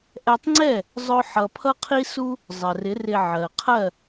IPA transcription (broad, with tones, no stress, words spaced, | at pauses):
ʔɛ˧tˤŋ͡ǀɛ˥˩ | zˤʊ˥ħʌ˧ pʰʌ˥qʰi˥su˥ | zˤɜ˩rɪ˩˥ rɪ˧ ʕɜ˩qʰɜ˥˩